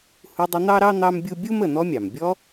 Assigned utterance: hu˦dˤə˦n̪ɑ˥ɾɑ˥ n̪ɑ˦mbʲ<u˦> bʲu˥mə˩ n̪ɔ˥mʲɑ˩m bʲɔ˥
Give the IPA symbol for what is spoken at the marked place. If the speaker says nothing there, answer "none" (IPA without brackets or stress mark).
u˦